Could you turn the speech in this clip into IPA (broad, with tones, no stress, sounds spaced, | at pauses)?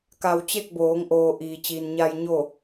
k a˧ w t͡ɕ e˥˨ k̚ b oː˩˧ ŋ ʔ oː˩ ʔ iː˩ t͡ɕ iː˩ n ɲ a˧ j ɲ o˥˨